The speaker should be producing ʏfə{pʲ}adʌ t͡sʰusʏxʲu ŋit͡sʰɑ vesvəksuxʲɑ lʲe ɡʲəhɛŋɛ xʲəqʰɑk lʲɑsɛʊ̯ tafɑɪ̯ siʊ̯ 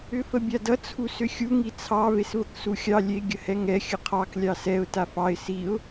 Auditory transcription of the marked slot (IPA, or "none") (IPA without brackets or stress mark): bʲ